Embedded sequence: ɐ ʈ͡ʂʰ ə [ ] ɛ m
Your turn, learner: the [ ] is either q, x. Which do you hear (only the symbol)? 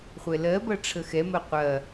x